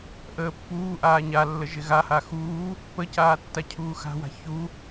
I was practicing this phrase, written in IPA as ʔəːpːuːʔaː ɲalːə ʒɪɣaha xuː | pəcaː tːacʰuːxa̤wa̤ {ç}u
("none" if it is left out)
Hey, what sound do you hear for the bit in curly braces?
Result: ç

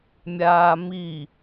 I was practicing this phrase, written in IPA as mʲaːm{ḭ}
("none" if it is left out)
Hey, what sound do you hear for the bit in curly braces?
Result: i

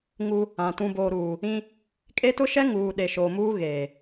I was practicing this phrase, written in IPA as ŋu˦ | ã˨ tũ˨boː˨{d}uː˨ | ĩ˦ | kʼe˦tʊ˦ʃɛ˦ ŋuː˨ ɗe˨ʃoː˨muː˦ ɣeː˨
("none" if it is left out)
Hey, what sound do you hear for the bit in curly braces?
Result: ɾ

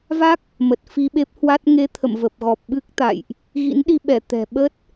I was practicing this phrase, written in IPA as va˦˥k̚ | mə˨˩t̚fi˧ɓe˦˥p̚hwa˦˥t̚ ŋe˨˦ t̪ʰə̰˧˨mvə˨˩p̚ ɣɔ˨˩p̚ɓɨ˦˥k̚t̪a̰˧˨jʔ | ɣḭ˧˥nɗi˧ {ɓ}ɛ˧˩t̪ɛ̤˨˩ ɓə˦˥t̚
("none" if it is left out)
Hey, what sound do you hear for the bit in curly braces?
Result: ɓ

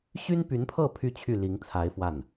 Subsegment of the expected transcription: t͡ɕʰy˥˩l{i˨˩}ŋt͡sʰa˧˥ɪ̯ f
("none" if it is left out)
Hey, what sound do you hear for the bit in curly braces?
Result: i˧˥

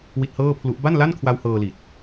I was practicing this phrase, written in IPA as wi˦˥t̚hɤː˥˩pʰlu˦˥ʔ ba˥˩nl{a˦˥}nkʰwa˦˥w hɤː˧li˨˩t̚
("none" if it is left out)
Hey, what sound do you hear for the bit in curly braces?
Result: a˥˩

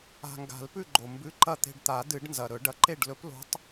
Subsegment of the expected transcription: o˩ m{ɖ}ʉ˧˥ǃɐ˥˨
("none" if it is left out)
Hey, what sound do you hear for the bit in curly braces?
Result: b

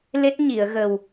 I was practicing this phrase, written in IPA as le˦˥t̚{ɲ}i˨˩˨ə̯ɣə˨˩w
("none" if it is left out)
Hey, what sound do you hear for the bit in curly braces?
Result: ɲ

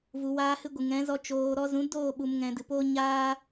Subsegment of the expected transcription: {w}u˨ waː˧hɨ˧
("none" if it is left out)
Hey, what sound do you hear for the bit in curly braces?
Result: v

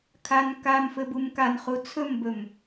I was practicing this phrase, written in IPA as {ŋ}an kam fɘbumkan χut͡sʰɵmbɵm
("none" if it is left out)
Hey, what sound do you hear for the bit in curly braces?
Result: kʰ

